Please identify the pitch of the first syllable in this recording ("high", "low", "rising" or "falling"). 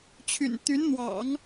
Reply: low